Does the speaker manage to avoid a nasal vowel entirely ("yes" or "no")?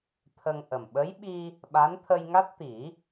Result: yes